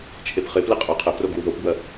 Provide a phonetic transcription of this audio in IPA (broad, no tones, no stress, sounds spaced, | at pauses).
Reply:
t͡ʃʰ e p χ ɪ p l ɪ qʼ œ qʰ ə b r o ɡ w u ð o p b w ɐ